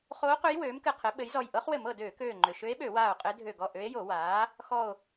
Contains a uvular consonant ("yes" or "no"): yes